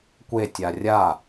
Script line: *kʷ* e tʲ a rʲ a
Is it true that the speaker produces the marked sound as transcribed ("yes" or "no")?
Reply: yes